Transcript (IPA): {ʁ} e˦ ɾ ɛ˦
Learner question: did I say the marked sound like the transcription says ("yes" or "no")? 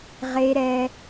yes